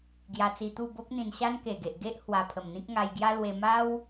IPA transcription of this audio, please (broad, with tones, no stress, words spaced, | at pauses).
ɡja˧t͡si˧t̪u˥˧ bo˦k̚n̪ĩ˧nɕa˦n ke˨˩ɡe˨ʔɡe˦ʔ hwa˧pʰə˨˩mn̪ĩ˦k̚ ŋa˧jɡja˦lwe˧ ma˦w